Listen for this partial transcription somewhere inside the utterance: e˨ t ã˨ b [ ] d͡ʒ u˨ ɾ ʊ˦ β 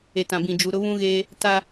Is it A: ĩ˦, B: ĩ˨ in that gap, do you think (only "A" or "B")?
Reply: B